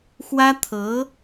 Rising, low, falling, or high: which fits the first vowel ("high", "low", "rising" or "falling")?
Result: high